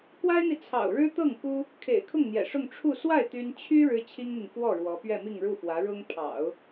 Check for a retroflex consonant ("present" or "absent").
present